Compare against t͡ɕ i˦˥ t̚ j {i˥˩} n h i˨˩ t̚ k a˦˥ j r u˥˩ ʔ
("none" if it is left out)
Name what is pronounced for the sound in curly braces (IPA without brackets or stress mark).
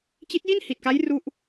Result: i˥˩